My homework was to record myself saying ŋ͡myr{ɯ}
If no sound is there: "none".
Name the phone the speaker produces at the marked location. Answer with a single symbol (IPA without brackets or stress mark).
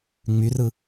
ɯ